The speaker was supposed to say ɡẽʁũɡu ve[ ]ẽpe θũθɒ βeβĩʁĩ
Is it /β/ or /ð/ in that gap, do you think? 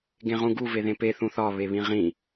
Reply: ð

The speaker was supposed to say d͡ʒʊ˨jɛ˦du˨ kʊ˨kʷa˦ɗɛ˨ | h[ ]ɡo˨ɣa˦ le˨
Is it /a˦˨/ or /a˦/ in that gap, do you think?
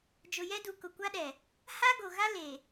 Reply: a˦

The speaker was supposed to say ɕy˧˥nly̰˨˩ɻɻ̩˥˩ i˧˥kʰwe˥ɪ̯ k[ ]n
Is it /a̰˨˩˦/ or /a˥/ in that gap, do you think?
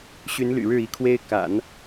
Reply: a̰˨˩˦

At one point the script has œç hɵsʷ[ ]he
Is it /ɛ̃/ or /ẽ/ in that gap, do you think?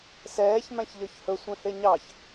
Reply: ɛ̃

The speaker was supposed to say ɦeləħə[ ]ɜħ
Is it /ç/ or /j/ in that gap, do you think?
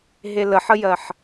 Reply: j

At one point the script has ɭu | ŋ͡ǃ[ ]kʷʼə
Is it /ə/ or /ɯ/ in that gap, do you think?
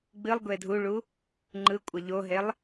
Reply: ɯ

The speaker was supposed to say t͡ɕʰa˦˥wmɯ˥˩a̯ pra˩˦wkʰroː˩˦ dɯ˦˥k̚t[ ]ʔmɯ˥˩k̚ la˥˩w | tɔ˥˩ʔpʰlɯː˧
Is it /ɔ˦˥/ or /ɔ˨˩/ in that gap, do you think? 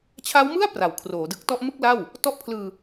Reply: ɔ˦˥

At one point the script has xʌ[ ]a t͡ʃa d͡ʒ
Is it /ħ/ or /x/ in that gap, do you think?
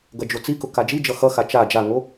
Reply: x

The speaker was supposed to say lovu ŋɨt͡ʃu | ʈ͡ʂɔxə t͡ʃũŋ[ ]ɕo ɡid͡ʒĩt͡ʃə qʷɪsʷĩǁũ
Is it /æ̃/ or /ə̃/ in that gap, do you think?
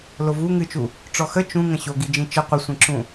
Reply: ə̃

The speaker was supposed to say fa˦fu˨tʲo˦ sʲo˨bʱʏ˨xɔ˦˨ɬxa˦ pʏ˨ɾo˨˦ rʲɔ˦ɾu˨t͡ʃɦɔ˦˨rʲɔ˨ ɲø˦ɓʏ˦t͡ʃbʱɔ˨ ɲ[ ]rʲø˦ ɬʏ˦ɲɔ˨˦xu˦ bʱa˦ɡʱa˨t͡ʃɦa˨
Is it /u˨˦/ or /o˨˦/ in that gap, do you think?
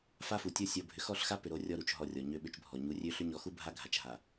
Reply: u˨˦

